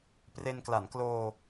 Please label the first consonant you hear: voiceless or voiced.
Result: voiceless